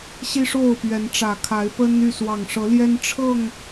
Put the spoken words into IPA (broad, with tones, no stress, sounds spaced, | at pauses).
ɕ i˦ ʂ o˥˨ ʊ̯ p ɥ ɛ˨˦ n ʈ͡ʂ ä˨˩ kʰ a˨˦ ɪ̯ p ə˦ n y˥˨ s w ɑ˨˩ ŋ ʂ ɤ˨˦ l j ɛ˦ n ʈ͡ʂʰ ɤ˥˨ ŋ